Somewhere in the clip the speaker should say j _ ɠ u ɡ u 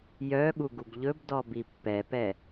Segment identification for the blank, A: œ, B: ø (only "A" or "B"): A